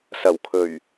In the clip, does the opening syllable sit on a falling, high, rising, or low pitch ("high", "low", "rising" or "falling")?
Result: low